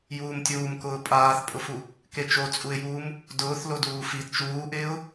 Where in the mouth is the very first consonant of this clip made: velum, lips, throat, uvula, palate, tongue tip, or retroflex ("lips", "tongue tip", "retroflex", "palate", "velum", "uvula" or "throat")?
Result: palate